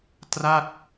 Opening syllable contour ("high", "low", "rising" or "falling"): falling